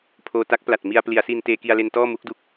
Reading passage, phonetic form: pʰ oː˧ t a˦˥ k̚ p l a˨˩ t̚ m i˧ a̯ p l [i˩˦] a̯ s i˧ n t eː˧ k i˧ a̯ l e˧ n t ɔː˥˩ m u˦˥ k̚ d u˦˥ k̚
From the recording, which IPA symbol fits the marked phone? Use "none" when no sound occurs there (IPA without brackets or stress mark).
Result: i˩˦